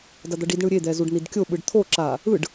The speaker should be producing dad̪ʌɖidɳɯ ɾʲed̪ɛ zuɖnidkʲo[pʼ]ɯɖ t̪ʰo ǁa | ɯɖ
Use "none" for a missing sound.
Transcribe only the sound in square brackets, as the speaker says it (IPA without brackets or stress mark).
ɓ